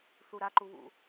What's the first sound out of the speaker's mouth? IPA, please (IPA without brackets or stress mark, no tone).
θ